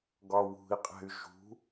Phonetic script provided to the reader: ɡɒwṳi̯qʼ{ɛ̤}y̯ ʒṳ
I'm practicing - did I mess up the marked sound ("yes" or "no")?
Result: no